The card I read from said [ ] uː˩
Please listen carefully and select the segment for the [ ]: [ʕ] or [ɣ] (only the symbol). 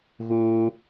ɣ